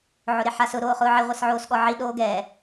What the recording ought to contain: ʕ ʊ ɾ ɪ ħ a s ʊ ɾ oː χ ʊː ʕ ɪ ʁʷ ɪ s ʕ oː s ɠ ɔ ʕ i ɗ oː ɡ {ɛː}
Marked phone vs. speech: correct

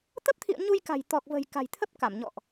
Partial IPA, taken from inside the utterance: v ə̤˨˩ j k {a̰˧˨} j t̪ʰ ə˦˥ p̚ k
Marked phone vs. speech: incorrect: a̤˨˩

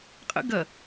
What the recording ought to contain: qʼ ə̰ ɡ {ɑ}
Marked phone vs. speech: incorrect: ɐ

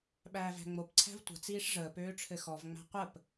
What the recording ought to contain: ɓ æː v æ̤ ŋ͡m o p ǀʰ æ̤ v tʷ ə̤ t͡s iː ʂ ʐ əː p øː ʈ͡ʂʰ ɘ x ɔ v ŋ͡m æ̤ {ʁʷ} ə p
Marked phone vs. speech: incorrect: qʷ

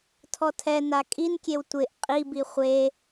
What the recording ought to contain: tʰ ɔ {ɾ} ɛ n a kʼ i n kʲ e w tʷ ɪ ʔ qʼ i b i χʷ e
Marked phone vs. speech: incorrect: tʰ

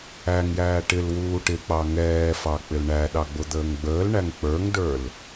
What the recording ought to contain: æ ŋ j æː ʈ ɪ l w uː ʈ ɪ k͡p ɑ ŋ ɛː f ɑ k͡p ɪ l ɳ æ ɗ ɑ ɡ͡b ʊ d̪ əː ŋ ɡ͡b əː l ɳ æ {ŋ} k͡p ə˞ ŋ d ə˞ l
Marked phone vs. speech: correct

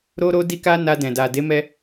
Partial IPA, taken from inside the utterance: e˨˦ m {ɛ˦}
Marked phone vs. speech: incorrect: ɛ˧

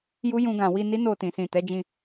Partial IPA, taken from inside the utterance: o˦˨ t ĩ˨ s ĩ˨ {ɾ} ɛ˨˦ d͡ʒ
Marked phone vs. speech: incorrect: t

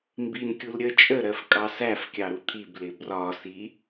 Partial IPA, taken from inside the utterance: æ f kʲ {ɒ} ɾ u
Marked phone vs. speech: incorrect: ɑ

